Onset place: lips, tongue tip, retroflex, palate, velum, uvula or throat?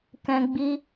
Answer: velum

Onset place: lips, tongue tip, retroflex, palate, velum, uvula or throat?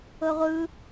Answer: uvula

